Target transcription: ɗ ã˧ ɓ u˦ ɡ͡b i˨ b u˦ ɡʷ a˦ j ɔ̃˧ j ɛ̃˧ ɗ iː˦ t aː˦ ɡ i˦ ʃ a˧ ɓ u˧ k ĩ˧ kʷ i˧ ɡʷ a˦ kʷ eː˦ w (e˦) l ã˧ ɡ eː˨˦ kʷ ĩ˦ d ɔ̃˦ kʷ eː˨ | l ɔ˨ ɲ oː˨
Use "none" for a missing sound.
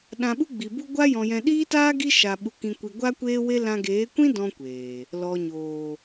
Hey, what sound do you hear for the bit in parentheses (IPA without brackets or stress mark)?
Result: e˦